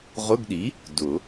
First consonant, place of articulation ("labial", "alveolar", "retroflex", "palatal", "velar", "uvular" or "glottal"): uvular